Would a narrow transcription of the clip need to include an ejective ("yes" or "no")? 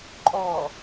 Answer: yes